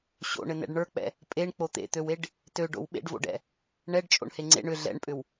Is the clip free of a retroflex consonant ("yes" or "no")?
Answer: no